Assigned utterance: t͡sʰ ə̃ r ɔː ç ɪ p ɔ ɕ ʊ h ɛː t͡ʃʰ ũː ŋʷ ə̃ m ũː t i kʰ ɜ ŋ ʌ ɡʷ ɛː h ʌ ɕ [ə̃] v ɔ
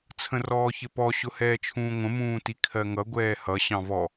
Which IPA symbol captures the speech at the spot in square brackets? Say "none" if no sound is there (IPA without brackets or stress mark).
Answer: ɑ̃